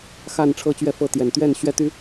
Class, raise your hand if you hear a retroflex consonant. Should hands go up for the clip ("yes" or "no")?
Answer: yes